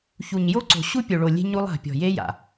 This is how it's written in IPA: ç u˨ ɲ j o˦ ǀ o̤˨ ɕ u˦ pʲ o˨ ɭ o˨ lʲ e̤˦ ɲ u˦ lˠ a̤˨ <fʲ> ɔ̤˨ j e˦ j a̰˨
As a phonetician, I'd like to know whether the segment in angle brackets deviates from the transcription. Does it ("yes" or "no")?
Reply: yes